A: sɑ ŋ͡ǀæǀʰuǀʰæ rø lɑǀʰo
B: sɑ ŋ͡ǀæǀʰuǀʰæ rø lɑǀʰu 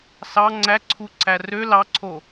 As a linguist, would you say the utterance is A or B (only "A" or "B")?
A